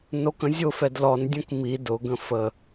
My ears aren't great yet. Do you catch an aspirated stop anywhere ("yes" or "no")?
no